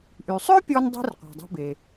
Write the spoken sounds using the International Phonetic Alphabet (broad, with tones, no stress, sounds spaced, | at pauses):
ʔ y˩ sˤ ʏ˥ pʲ ɔ˧ n dˤ i̤˥ r qʷ a̤˩ dˤ i̤˧ b e˩